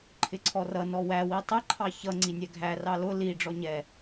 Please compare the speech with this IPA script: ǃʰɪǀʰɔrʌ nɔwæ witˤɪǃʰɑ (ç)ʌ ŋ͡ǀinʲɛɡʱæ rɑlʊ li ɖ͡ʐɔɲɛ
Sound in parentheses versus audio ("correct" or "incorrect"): correct